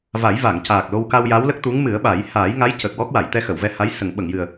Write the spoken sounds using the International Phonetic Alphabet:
v a˨˩˦ j v a˨˩˨ ŋ c aː˨˩ k̚ l o˧ w k a˧ w j a˧˥ w l ə˦˥ k̚ t̪ u˧˥ ŋ m ɨ˨˩˦ ə̯ ɓ a˨˩˦ j h aː˨˩˦ j ŋ a˧˥ j c ə˨˩ k̚ w ɔ˦˥ k̚ w a˨˩˨ j t̪ ɛ˧ x ə˨˩˨ w v ɛ˧ h a˧˥ j s ə˨˩˨ ŋ ɓ ə˨˩˨ ŋ j ɨ˨˩ ə̯

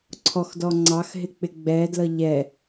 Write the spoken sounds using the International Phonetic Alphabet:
ǀʰ ɔ x d ɔ ŋ͡ǀ ɑ x ɦ ɪ k͡p ɪ ɡ͡b ɛ d l ʌ ʎ ɛ

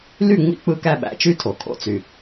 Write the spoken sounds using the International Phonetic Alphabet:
l y˥˩ ŋ͡m ḭ˥˩ k͡p ɯ˥˩ k æ˥˩ ɓ æ̰˧ t͡ʃ y˥˩ tʰ o˩ kʰ o̰˥˩ t͡s y˩

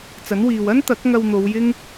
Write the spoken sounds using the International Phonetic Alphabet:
t͡s ɐ˨˥ n w iː˨ w ɐ˥ n t̪ ɐ˨˥ k̚ ŋ ɐ˧ w n̪ o˨˧ w j ɪ˥ ŋ

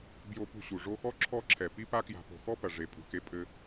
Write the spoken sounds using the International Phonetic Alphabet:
b j o˦ p ṳ˦ ɕ u˩ ʐ o˦ x ɔ˥ ǁʰ ɔ˦ ǁʰ ɛ˩ p i˦ p a˦ k j a̤˨ p o̤˩ x ɔ˥ p ɐ˩ ʐ e˩ pʼ ṳ˩ k e˨ pʼ ɘ˨

